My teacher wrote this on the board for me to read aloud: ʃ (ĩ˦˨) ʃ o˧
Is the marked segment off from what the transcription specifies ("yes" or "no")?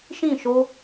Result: no